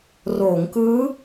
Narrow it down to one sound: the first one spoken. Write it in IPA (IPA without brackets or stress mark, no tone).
r